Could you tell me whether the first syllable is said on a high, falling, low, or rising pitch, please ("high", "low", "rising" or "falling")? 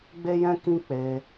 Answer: high